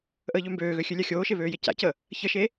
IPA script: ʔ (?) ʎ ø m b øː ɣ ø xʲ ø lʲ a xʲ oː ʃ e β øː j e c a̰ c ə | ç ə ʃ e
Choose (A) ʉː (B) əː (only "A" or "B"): B